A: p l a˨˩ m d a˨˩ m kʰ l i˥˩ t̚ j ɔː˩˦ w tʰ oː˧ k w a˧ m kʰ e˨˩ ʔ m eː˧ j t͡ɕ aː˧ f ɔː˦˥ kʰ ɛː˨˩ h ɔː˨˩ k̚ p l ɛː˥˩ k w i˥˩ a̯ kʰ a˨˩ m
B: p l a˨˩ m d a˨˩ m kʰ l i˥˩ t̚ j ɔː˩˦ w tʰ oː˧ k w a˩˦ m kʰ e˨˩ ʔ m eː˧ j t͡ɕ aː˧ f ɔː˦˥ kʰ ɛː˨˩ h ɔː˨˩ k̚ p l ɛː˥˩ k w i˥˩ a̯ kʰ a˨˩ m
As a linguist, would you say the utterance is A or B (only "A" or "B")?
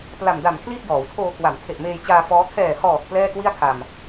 B